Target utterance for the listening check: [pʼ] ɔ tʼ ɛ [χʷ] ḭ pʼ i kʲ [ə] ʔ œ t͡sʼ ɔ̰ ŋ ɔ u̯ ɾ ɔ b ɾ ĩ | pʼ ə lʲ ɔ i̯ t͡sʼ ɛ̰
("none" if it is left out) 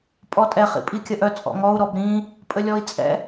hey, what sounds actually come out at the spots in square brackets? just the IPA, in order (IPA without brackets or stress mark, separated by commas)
pʼ, χ, ə